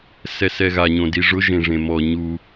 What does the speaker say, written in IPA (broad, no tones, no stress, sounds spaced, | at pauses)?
s ɛ s ɛ ɣ a ɲ õ d i ʐ ʊ ʒ ẽ ʐ ẽ m ɔ ɲ u